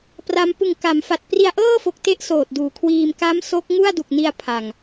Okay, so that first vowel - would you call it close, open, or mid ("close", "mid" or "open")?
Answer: open